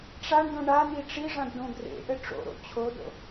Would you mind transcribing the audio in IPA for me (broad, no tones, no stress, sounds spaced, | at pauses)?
ʈ͡ʂ a ɳ d õ ɳ a n̪ i ʈ͡ʂ i ʐ ã d ɖ õ ɡ r ḛ ʔ ɘ ʈ͡ʂ o̰ ɾ o̰ t͡ɕʰ o d o̰